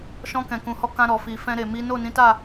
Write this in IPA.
ʃ ɔ̃˧ k ɛ̃˨ k ũ˨ h ɔ˨˦ k ã˧ ɾ ɔ˨ f i˨ f ɛ̃˧ ɾ e˨ m i˨˦ n o˦˨ n ĩ˨˦ t a˦˨

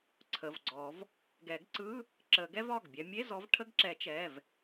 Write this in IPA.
ǀʰ ə˩˧˩ v ɡ͡ǀ ɔ˨˩˦ v | ɡ ɛ˨˩˦ ɡ ǀ ɯ˧˥˧ | ǁ ə˨˩˦ ɡ ɛ˦˥ v ɒ˩˧˩ ɡ bʲ ɛ˨˦ mʲ e˧˥˧ z ɔ˨˦ v ʈʰ ə˧˥˧ ɡ ǁ ɛ˨˩˦ t͡ʃ ɛ˩˧˩ v

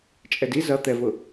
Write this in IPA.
t͡ʃʼ ɛ d i z ʌ t̪ ɛ v ʊ

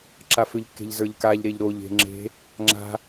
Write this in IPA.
ǁ a f ʏ ʎ kː e̤ ʎ z ə˞ ʎ k a ʎ ɾ e ʎ ɾ o ʎ e̤ ŋ͡ǁ e̤ | ŋ͡ǁ a̤

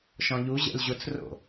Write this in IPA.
ʃ ɔ̃ ʎ u ʑ ɛ̰ l ʑ ʊ t͡s r o̰

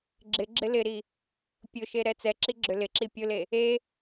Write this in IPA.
ɡ͡ǁ ɪ ɡ͡ǁ ɪ l ɪ ɾ i | pʲ ʊ ʃ e ɾ ɛ t͡s ɛ ǁ i ɡ͡ǁ ʏ l ɪ ǁ i pʲ ʊ l e | e

